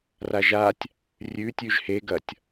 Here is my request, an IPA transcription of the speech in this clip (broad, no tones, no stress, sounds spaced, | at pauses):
r a ʒ a tʲ | rʲ ʉ tʲ ʉ ʒ h e ɡ ɐ tʲ